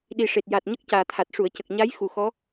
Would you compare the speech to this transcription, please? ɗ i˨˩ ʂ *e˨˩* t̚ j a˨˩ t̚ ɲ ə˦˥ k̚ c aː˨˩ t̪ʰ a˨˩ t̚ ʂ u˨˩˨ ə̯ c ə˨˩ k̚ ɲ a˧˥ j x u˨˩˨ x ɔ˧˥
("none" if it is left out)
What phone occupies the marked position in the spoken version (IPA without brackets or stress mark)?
e˨˩